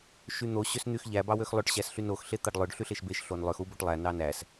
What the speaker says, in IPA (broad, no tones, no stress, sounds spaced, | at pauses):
ʃ y n̪ o ɕ ø s n̪ y x ʎ æ b ɑ w ø x lˠ ø ʈ ɕ æ s ɬ y n o x ɬ e t̪ ɑ ɖ lˠ ø ɖ ɬ y ɬ e ʃ b e ʃ ɬ o n lˠ ø x u b o ʈ lˠ æ n ɑ n æ s